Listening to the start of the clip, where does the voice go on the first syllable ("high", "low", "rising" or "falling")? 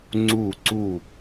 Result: falling